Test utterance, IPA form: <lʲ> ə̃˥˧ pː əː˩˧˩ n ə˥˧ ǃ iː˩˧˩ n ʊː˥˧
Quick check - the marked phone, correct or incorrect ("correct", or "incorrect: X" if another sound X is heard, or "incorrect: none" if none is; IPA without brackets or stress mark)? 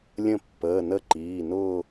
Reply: correct